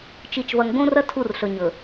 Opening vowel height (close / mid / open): close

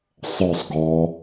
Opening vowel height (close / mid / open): mid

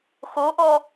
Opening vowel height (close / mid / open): mid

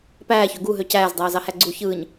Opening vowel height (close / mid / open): open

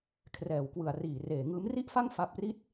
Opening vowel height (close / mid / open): mid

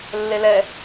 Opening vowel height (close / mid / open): mid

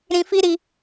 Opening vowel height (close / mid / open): close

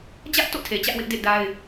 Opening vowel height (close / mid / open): open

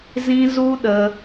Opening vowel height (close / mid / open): close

